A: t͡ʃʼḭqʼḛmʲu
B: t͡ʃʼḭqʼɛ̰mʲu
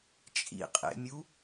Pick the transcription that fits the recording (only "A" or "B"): A